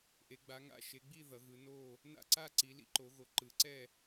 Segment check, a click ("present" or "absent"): present